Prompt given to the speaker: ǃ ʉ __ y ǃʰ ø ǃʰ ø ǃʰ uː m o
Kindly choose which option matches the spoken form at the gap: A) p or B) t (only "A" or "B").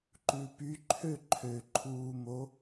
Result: A